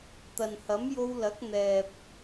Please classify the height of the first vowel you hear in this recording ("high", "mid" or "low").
low